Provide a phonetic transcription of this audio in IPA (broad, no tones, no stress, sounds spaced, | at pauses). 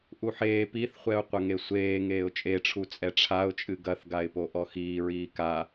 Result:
ʔ u ħ eː p i θ χʷ ɛ ʊ̯ qʷ ɐ ŋ e sʷ eː ŋ eː ʊ̯ t͡ʃʼ e ʈ͡ʂʰ u t͡sʼ ɛ ʈ͡ʂʰ a ʊ̯ t͡ʃʼ ɨ ɡ ɐ θ ɡ a ɪ̯ p o ʔ ɔ x iː ɹ iː k a